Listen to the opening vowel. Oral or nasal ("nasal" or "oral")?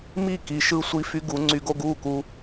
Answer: oral